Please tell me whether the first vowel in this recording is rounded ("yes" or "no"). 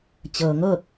no